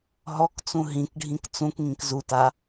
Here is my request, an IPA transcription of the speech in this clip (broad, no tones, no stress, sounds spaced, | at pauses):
ɦ ɔ k t͡s ũ ɦ ĩ k ɖʱ ĩ k t͡s ũ k ŋ ĩ k z u t a